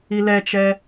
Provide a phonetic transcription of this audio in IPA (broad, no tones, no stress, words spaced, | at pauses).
ilɛt͡ʃɛ